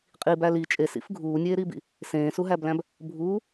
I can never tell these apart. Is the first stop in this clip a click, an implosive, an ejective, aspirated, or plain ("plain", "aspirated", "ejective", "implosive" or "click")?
ejective